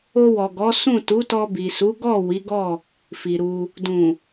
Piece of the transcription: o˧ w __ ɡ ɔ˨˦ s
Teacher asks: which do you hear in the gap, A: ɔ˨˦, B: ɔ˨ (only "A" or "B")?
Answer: B